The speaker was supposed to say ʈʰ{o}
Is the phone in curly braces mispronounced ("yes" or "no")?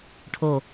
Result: no